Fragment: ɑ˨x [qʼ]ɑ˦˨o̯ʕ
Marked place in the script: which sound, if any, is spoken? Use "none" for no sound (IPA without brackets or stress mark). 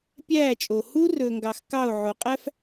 k